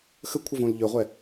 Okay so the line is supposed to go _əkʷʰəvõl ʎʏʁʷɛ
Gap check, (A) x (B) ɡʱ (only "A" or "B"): A